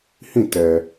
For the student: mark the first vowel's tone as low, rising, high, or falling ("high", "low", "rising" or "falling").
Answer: falling